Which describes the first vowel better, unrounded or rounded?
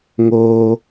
rounded